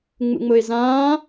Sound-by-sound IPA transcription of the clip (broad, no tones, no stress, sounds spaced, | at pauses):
ŋ͡m ṵ ŋ͡m ʊ ɪ̯ z ãː